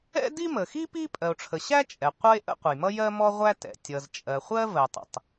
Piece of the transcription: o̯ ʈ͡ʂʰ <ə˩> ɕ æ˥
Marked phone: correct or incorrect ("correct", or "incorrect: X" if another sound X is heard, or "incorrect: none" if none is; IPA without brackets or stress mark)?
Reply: correct